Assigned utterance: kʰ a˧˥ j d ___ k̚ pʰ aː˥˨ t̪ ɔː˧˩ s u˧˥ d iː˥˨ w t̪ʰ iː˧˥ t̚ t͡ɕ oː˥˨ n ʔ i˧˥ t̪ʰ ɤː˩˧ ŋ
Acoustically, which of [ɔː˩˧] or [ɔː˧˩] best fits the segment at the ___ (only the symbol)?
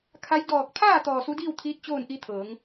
ɔː˧˩